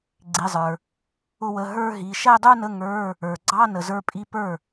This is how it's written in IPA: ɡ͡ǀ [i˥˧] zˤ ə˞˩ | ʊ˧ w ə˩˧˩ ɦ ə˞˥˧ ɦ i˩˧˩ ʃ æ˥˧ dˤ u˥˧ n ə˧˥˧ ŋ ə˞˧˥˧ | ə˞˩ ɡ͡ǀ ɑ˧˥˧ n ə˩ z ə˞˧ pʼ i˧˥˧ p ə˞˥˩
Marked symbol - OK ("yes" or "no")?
no